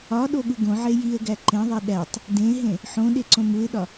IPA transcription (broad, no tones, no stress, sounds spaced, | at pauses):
ɒ ɗ o ɠ u ɡ õ ʕ e j i ə̯ ɡ æ ǃ ẽ ðˤ e ɗ æ tˤ | d ẽ ɦ ẽ | ħ õ ɗ e ǀ õ m u ɪ̯ ɗ ɒ